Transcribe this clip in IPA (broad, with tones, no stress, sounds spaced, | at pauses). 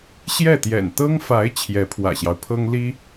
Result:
ɕ j ɛ˥˩ t̪ j ɛ̰˨˩ n t̪ ɤ˥ ŋ f a˧˥ ɪ̯ t͡ɕʰ j ɛ˧˥ pʰ w ä̰˨˩ ɕ j ɑ˦ ʊ̯ pʰ ɤ˥ ŋ l i˥